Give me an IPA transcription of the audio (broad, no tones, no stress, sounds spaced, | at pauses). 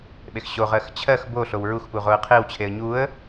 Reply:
ɓ e x ɕ o ʁ ɜ x t͡ɕʰ ɜ x b o ɬ o w ɹ u x p u ʁ o ə̯ qʰ e w t͡ɕʰ e ə̯ ɲ u ə̯